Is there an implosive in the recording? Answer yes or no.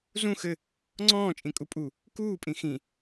no